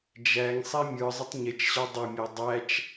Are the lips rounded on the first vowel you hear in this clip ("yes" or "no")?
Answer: no